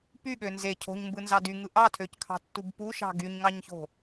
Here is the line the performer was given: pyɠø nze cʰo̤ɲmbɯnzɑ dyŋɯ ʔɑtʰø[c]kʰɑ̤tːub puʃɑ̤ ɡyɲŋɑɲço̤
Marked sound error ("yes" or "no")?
no